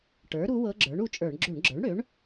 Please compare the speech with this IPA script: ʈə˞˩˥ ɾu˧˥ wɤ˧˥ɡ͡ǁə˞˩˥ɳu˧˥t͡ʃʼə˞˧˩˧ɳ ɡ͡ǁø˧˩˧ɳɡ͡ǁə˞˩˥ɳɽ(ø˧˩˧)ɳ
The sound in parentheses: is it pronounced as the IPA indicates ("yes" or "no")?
no